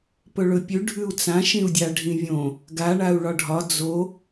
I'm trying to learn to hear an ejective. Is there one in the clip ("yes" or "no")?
no